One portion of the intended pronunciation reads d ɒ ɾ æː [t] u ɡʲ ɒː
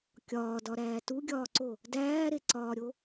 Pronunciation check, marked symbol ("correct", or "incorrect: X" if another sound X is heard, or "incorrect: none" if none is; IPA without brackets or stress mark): correct